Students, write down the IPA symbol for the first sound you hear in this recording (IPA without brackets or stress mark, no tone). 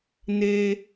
n̪